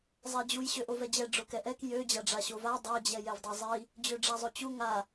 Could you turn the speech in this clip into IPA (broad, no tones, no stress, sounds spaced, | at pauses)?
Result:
zˤ ɛ d͡ʑ u j ɕ ø ʔ o v ɛ d͡ʑ ɛ ɖ͡ʐ o k ɛ ʔ ɛ k j ø d͡ʑ a ɖ͡ʐ a ɕ o v a dˤ a d͡ʑ ɛ j ɛ v dˤ ɛ zˤ i | d͡ʑ ø ɖ͡ʐ a zˤ ø t͡ɕ u ŋ a